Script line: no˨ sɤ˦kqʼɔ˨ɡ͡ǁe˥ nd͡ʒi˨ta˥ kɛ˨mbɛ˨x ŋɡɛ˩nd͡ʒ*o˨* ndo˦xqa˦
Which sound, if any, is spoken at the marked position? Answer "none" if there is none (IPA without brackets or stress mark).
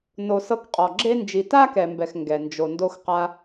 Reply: o˨